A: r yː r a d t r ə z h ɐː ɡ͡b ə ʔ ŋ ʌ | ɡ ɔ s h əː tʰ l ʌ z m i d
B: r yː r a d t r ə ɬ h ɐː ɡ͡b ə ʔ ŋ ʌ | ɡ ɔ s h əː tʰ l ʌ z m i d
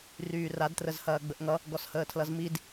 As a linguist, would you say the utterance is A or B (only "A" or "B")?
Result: A